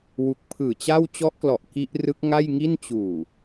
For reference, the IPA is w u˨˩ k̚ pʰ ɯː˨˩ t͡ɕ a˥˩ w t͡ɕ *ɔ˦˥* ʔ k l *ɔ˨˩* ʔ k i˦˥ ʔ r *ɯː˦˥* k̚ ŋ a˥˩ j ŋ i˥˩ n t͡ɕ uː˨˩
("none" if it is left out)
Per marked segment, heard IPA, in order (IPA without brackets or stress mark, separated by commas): ɔ˦˥, ɔ˨˩, ɯ˦˥